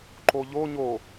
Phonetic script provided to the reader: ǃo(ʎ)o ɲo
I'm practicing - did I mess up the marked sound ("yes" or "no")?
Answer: no